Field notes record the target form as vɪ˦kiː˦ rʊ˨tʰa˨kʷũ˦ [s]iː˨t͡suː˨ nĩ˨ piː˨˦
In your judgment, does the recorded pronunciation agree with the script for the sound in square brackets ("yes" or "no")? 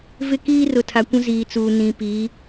no